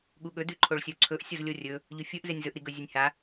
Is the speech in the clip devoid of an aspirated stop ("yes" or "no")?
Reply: no